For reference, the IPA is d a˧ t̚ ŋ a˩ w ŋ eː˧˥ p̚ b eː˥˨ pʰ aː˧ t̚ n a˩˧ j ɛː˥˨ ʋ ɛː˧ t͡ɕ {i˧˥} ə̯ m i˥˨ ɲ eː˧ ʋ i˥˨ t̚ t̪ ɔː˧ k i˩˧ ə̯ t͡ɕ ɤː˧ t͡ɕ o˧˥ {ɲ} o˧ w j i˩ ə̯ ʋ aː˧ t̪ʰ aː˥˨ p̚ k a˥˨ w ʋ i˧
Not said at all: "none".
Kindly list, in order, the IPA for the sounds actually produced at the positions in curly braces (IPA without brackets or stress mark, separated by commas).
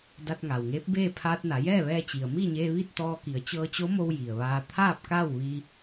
i˩, m